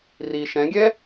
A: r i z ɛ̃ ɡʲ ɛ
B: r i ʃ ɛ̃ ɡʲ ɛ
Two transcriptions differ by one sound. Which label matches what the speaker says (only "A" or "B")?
B